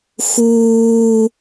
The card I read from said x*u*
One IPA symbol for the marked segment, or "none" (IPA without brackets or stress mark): uː